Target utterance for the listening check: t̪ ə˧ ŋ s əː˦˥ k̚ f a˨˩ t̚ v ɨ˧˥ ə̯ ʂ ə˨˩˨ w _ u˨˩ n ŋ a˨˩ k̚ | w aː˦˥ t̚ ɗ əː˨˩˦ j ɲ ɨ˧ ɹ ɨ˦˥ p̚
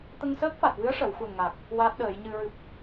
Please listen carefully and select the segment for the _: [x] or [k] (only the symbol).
x